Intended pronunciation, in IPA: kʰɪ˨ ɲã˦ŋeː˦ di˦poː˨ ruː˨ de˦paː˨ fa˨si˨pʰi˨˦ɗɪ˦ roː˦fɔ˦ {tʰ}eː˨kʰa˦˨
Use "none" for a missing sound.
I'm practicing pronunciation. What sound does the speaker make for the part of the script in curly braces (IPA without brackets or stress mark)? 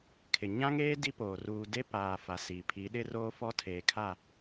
tʰ